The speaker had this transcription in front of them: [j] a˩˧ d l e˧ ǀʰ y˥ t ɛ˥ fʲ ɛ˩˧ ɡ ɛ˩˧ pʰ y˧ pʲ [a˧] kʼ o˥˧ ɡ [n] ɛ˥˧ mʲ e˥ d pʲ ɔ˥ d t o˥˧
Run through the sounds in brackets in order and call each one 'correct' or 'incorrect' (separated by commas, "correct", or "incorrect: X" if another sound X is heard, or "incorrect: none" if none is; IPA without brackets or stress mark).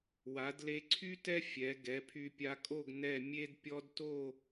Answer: incorrect: w, correct, correct